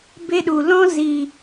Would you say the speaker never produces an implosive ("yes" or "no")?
no